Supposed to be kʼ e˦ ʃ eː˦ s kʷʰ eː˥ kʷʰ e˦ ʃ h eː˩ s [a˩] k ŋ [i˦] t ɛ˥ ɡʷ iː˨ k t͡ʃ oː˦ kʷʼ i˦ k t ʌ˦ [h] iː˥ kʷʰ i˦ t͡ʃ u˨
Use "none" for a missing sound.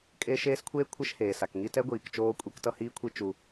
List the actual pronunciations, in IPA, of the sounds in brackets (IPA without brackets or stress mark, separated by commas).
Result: a˩, i˦, h